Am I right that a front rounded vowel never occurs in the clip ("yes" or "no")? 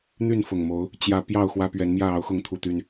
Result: no